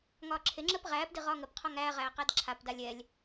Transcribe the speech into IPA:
ŋ ɒː ǁʰ e ŋ͡ǁ əː p ʁ æː p d i ʁ ɒː ŋ ə p qʰ ɒ ŋ æː ʁ æː q æ d ǁʰ a p d a lʲ ɛ lʲ

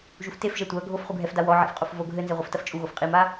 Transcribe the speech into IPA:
ʒ u f t e f ʒ ɛ tʷ ɐ ɡʱ o f χ u ɡʱ ɛ f d a w ɔ ʕ ḭ f qʼ o f v o ɡʱ ɘ n z e ʁʷ ɘ f t ɐ f t͡ʃʼ u ɣ o f qʼ i m a

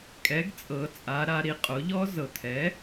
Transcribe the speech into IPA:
kʼ ɛ˩˥ ɡ t͡sʼ ɤ˩˧ t͡sʼ a˩˧ ɾ a˩˧ ɾ i˩˧ qʼ o˩˥ ʎ ɔ˩˥ z ɤ˩˧ t̪ʰ ɛ˩˥

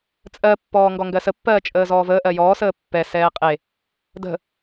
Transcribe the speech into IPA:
t͡sʼ ɜ pː ɔː ŋ ɡ ɔ ŋ ɡ ɜ s ə pː ɜː t͡ʃʼ əː z ɔː v əː ʔ ɜ j ɔː s əː pː ɛ s ɛː qʼ e | d ə̤

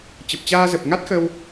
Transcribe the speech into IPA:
t͡ɕ ə˨˩ p̚ t͡ɕ aː˧ z ə˨˩ p̚ ŋ a˦˥ t̚ x ə˧ w

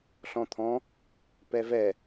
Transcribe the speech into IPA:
ɬ ɔ̃ t̪ʰ ɔ̃ | p ɛ v ɛ

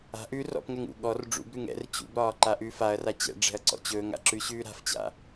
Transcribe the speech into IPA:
a̤ ʔ ʉ r ɔ̰ p ŋ ɛ ŋ ṵ ɠ ɔ r ɖ͡ʐ ṵ b ɾ ʉ ŋ ɛ̰ r t͡ɕ ṵ b ɾ ɒː ǃ a ʔ ʉː f a ɐ̯ r a t͡ɕ ɛ̰ ɖ͡ʐ ɛ̤ ɐ̯ ǀ ɔ̰ t͡ɕ ɵː ŋ a̰ ǁ ʉ ɕ ʉː ɾ a̤ f t͡ɕ a̰

